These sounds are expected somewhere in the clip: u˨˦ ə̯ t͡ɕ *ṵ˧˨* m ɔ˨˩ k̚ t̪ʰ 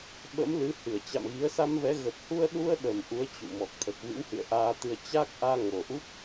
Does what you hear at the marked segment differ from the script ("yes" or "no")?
no